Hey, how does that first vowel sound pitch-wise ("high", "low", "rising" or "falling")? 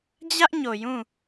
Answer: high